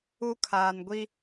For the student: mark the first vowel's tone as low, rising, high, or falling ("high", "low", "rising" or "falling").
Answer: high